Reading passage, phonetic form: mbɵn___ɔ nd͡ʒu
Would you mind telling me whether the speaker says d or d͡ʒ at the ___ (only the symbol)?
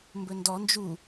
d